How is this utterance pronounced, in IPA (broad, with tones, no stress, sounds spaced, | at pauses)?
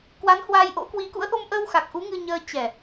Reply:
k w a˨˦ n h w a˧ j ʔ o̰˧˥ k w i˧ k ṵ˧˥ ə̯ ʔ o˧ m ʔ əː˧ w x a˨˩ k̚ ʔ u˨˦ ŋ ɨ˧ ɲ əː˧ t͡ɕ ɛ˨˩